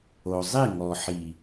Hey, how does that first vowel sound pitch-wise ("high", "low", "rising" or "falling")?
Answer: low